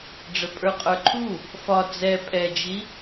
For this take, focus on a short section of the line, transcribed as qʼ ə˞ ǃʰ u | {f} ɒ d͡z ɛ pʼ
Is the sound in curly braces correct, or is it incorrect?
correct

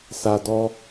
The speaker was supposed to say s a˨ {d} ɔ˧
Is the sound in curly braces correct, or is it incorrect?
correct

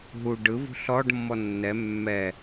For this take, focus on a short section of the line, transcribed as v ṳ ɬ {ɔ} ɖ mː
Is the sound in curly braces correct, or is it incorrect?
correct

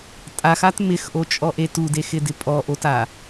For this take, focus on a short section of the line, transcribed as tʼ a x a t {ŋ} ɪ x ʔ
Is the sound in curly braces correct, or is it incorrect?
incorrect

